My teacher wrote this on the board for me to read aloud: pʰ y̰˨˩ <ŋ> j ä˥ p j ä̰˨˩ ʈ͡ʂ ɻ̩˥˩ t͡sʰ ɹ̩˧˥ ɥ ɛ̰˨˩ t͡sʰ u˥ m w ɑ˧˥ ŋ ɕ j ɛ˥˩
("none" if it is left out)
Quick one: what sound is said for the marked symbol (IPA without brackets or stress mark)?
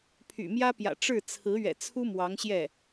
m